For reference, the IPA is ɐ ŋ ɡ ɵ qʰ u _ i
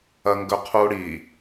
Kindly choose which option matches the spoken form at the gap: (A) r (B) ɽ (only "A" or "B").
B